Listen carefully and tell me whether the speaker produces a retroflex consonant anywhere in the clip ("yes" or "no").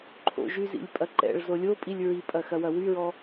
yes